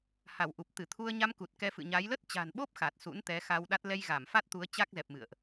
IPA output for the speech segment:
h a˧˩ w ʔ u˨˩ p̚ t̪ ɨ˧˩ t̪ʰ u˧ ə̯ ɲ a˧ m k u˨˩ t̚ k ɛ˧ f ɨ̰˧˨ ɲ a˨˦ j l ə˦˥ t̚ t͡ɕ a̤˨˩ n ɓ o˦˥ p̚ x a˨˩ t̚ s ṵ˧˥ n t̪ ɛ˨˦ x a˧ w ɗ a˦˥ t̚ l ɛ˧ j ɣ a˧˩ m f a˦˥ t̚ t̪ u˨˦ ə̯ t͡ɕ a˦˥ k̚ z ɛ˨˩ p̚ m ɨ̰˧˨ ə̯ ʔ

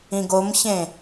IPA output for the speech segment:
ĩ ɡ o m ç ẽ

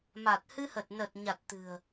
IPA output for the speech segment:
m a˨˩ t̚ h ɨ˧ h ə˨˩ t̚ n ə˨˩ t̚ ɲ a˨˩ t̚ t̪ ɨ̤˨˩ ə̯

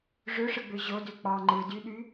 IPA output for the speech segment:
ʐ ø ʂ ɯ ɡ͡b ø ʑ o d ø k͡p ɑ ŋ͡ǃ ɯ d y ɗ y

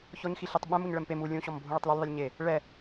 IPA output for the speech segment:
ç ɔ ɲ x i ɬ ɪ tˤ ɓ ɛ̃ m u ɲ ɭ ɛ m p e m u lʲ ũ ɕ ɔ m bʱ ũ ɭ ɪ tˤ l ɪ lʲ ðˤ i lʲ ɲ e | ɭ ɛ

